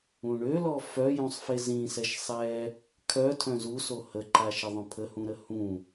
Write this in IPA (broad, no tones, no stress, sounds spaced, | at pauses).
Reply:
ũ ɳ ø l ɔ f œ j ũ sˤ f e z ĩ s ɛ ʃ sˤ ɛ | kʰ œ tʰ œ̃ z u s o h ə ǃ a ʃ ə ðˤ œ̃ pʰ ə h ũ ɾ ə h ũ